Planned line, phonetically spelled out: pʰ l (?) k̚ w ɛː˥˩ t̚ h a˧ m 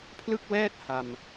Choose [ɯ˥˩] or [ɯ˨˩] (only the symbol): ɯ˥˩